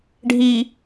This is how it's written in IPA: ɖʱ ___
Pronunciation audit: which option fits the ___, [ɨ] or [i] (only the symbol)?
i